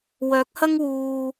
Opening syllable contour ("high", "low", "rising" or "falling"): rising